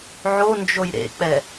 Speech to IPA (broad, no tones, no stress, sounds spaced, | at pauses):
ʕ o n d͡ʒ o j ɾ ḛ k͡p ɛ